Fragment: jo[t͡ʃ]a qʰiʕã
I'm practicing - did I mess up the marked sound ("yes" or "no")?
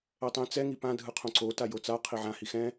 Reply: yes